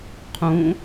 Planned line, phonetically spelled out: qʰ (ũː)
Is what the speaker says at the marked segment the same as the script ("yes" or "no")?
yes